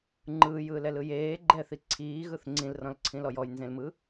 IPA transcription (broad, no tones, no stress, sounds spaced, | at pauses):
ŋ͡ǃ ɯː j ɯː l ɛ l ɯ j eː ɡ͡ǃ ɛ θ i ǀʰ iː ɣ ɯ θ ŋ͡ǀ ĩ l r ɔ̃ l ǀʰ ĩ l ɔ j ɔ j n z ẽ l m ɯ